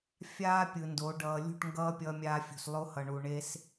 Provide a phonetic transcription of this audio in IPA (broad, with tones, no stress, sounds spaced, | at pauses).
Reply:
fʲ aː˦ pʲ ɯ˨ n d o˨˦ ɖ ʌː˨ lʲ ṳ˦˨ ʈ ŋ ɡ ʌː˦ pʲ ʌː˦ mʲ aː˦ fʲ ṳ˨ s lˠ o˦ h ʌ˨ ɳ u˨ ɳ eː˦ s